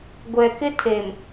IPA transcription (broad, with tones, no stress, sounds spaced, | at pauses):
ɡʷ ɛ˨ k ɪ˦ tʰ e˨ m